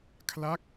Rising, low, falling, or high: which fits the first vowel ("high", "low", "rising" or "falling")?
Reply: falling